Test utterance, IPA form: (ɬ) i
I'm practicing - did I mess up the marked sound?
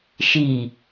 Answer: yes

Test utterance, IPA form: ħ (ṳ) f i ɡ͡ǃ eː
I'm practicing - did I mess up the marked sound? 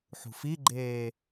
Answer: no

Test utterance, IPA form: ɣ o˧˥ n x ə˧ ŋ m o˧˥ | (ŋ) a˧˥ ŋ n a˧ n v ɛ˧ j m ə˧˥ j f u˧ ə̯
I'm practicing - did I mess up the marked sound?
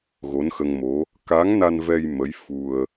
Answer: yes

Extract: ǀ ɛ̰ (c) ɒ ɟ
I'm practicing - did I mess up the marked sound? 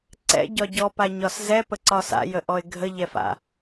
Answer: yes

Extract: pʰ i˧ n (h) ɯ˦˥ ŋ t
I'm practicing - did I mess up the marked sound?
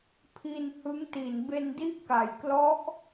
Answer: no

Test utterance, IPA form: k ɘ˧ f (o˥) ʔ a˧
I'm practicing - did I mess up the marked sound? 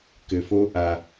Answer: no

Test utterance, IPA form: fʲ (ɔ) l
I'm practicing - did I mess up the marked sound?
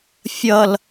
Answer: yes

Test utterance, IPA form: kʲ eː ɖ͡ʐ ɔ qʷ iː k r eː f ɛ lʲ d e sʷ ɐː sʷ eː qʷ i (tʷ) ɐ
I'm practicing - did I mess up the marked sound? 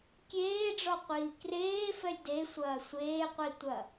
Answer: no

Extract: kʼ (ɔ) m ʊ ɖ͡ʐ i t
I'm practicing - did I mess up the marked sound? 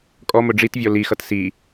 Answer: no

